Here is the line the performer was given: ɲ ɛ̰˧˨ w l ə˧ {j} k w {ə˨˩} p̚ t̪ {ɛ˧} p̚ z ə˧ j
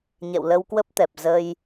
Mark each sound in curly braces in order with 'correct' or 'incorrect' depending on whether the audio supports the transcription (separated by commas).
incorrect, incorrect, incorrect